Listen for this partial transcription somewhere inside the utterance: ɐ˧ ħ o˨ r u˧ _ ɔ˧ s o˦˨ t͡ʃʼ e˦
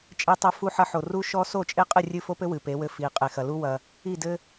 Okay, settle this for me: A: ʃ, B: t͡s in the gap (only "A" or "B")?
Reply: A